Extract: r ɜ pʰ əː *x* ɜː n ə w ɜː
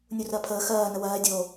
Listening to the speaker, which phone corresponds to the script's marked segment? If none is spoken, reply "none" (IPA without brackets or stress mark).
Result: x